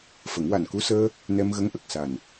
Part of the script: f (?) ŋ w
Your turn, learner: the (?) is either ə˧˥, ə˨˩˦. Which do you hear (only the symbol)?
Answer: ə˨˩˦